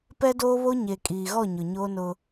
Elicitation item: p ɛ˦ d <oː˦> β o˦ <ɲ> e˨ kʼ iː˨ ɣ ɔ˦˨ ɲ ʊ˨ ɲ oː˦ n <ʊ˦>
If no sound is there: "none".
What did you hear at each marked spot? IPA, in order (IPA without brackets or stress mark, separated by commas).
oː˦, ɲ, ʊ˦